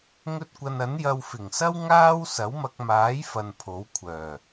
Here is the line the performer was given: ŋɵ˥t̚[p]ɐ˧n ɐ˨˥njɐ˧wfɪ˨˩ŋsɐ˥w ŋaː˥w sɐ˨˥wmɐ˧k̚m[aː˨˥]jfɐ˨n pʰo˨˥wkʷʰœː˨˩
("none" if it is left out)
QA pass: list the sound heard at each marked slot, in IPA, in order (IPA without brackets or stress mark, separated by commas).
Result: kʷ, aː˨˥